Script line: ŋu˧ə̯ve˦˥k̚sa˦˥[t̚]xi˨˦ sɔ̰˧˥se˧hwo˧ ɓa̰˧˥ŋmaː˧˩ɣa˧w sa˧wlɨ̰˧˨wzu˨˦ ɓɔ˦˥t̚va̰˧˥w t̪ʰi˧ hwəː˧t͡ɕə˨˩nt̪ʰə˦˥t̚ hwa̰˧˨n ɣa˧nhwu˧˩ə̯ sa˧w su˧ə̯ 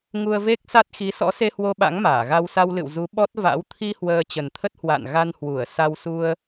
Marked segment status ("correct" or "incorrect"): correct